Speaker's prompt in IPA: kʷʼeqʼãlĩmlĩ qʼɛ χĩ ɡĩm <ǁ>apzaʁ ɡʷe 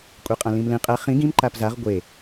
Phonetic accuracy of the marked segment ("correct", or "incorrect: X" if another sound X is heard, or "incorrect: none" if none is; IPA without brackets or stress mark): incorrect: ǃ